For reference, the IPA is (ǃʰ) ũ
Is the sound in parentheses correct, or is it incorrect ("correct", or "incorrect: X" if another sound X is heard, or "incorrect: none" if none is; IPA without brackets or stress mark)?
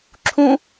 incorrect: ǁʰ